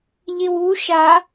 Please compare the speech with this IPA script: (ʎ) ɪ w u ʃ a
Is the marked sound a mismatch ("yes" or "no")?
no